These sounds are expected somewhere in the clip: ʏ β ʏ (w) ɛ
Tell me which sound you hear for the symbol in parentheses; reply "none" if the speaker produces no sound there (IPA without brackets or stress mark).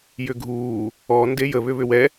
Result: w